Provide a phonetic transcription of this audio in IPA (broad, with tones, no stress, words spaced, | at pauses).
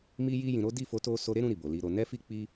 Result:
mi˧ji˧jĩ˨ ɾo˨˦di˦˨fo˨˦to˧ so˧ɾe˦ɾũ˧ ɾi˨bo˨li˨˦ɾo˧ nɛ˦fi˦ k͡pi˦